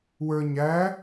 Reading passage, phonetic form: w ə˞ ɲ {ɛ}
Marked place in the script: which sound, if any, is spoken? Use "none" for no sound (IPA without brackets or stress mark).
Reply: æ